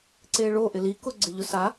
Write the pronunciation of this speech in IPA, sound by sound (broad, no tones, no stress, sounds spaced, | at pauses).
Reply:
ǀ e ɭ o ʔ ɪ l i k ʊ ɡ͡ǀ ɪ ʎ ʊ s a